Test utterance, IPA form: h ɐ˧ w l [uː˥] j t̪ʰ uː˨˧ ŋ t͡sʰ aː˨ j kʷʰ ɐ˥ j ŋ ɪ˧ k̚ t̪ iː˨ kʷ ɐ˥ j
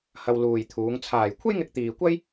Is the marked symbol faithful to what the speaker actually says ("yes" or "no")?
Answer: no